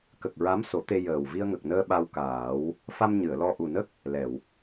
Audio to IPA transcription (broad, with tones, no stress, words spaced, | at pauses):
kə˨˩k̚ɹa˧˥m so˨˩˦t̪e˧ jəː˨˩w vi˧ə̯ŋə˨˩k̚nəː˧ ɓa˧wkaː˨˩˦w | fa˧m ɲɨ˨˩˨ə̯lɔ˧ ʔu˨˩nə˦˥k̚ | lɛ˨˩˨w